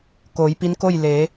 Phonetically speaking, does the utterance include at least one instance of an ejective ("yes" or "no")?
no